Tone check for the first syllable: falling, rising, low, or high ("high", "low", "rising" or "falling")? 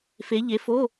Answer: rising